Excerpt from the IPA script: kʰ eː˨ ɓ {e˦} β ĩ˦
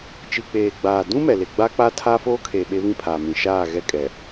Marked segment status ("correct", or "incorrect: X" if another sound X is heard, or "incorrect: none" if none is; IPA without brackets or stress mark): correct